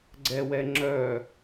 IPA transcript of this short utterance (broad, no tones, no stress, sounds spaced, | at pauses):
ɡ͡ǀ ɛ w ɛ ŋ͡ǁ œ